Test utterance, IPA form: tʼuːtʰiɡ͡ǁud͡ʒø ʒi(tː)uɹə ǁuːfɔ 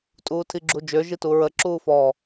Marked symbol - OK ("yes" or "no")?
no